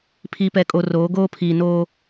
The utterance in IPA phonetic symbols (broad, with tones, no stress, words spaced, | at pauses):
pʰi˨pɛ˨kʼo˨ roː˨˦ ɡoː˦pʰiː˨noː˦